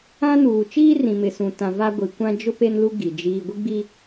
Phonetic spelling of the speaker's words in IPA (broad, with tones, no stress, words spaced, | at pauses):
ã˦nuː˨ t͡ʃiː˦rĩ˨mɪ˨ sũ˨ tã˨va˦ ɡʷi˨ kʷã˦ d͡ʒʊ˦ pe˦nlu˦ ɡi˨d͡ʒiː˦ ɡʷi˦ɡ͡bi˦